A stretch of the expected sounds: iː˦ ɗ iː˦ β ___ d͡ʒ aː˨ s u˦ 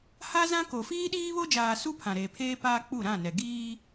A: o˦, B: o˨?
A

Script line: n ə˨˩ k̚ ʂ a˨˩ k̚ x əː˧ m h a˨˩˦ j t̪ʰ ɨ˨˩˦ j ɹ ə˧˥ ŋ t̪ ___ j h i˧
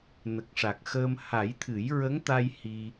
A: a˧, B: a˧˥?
A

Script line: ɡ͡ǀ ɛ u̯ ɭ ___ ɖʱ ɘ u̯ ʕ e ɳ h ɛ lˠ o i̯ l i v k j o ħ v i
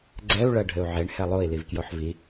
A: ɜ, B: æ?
A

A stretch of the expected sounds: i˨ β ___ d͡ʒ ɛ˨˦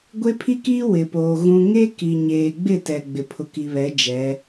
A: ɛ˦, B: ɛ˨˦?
B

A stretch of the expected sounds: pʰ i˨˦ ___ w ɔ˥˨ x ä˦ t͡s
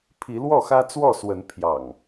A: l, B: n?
A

